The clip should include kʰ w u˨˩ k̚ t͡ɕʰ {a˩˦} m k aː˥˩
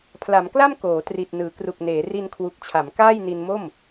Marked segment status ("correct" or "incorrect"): correct